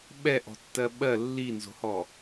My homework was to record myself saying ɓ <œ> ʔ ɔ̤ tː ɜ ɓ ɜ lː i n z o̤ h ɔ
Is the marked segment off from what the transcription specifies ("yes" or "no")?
yes